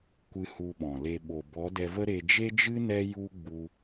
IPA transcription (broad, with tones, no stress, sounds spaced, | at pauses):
kʷ ɨ˧ h u˧ ɓ ɔ̃˨ l e˧ ɓ o˨ b ɔ˨˦ d ɛ˧ v ə˦ ɾ e˧ d͡ʒ e˦ d͡ʒ ɨ˦ n ɛ˦ j u˦ ɡ͡b u˧